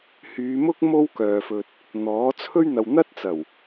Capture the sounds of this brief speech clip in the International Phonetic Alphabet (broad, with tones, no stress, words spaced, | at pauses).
hyː˨˧mʊ˥k̚ mo˥wkœː˨fɵ˨t̚ | n̪ɔː˨˥t͡sʰɵ˥ɥ n̪ɐ˨wn̪ɐ˥t̚t͡sɐ˨˩w